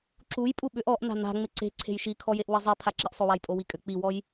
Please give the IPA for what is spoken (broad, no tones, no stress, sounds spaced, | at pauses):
ǁ u j pʼ u ɓ ʏ ʔ ɔ ʔ n a̤ n a̤ ŋ͡m ɪ ǀ e̤ ǀʰ e̤ j ʃ i kʰ ɔ j e ʔ w ɪ zˤ i pʰ a ǁ i ʔ sˤ o w a j pʼ o w i kʼ ʏ k͡p i w ɔ j